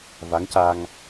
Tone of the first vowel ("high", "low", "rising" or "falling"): rising